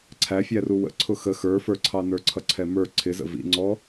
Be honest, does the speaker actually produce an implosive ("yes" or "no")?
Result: no